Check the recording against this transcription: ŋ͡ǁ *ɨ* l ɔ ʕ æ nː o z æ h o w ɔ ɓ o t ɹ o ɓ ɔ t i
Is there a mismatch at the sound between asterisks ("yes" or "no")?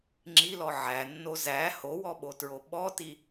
yes